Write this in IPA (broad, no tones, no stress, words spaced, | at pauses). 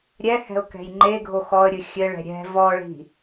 ɾʲɛhɛ̤ʊ̯kɛ̤j ŋ͡ǃeɡʱo xɔə̯ɾʲɨ xʲɘɭɛ̤ ɾʲɛ̤ vɔɭi̤